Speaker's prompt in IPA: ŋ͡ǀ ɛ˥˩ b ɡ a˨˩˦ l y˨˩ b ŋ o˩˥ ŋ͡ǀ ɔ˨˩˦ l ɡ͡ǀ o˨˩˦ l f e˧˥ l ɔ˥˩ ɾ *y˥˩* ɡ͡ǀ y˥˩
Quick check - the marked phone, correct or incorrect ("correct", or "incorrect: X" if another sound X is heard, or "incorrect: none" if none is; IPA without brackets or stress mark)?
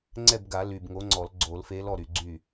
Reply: incorrect: y˨˩